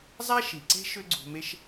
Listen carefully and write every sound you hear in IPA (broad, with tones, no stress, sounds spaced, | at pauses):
zˤ æ˦ ʃ i˨ ǀ e̤˦ ʃ ø˦ ɡ͡ǀ ṳ˧ m e˦ ʃ